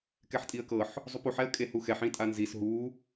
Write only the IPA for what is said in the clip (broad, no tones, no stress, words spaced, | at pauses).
kɛħtʼiə̯kɤħ | zˤupuħ ɛə̯kʼehuxɛħ ĩtʼanzis ɦu